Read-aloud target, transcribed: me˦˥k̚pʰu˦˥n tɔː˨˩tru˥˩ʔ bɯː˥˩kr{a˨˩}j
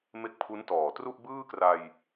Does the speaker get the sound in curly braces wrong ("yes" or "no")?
yes